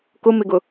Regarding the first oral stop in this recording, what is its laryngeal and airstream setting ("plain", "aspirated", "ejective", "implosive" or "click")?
plain